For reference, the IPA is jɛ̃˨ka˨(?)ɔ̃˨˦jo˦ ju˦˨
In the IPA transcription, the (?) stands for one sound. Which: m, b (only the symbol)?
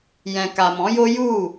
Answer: m